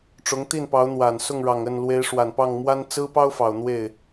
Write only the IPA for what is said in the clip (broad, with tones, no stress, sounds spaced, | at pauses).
ʈ͡ʂ ʊ˧˥ ŋ t̪ i˥˩ n p ɑ˧˥ ʊ̯ n̪ w a˨˩ n s ʊ˥˩ ŋ ɻ ɑ˨˩ ŋ ə˥˩ n l w e˧˥ ɪ̯ ʂ w a˨˩ n p ɑ˥˩ ŋ m w a˥ n t͡s ɹ̩˥ p ɑ˥ ʊ̯ f ɑ˨˩ ʊ̯ n̪ w e˥˩ ɪ̯